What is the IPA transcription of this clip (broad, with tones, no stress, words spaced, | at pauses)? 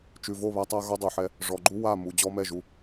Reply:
t͡ʃʉ˨vo˦˨βa˦tˤa˦ ɣɔ˦dˤo˨ħɛ˦ | ʐɔ˨ɡ͡ǃu˦ wa˦˨mu˨ d͡ʑɔ˦mɛ˦˨ʒu˦